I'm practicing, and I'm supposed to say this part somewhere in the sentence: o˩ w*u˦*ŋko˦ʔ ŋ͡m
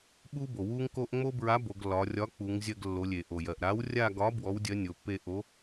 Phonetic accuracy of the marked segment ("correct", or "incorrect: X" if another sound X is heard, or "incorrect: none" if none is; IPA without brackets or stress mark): correct